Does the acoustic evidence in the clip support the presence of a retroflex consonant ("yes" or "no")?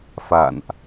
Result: no